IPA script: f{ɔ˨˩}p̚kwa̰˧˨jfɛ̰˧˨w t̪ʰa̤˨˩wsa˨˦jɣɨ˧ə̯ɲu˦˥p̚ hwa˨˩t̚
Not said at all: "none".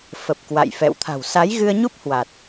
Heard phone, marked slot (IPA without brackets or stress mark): ə˨˩